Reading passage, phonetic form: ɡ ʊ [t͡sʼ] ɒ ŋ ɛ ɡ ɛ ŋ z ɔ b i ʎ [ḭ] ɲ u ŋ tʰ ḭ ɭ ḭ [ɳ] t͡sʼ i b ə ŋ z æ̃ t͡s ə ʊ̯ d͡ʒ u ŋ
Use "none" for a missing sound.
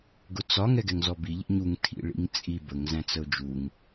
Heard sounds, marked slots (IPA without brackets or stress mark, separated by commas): t͡s, ḭ, ŋ